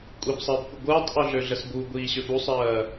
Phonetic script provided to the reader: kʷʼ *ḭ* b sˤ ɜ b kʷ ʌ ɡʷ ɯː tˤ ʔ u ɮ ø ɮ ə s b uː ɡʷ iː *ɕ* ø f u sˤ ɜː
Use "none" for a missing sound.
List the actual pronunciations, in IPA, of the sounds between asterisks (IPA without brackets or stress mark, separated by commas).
i, ɕ